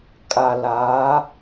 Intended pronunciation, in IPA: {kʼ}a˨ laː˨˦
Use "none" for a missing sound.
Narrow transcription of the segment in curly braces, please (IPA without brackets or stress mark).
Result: kʼ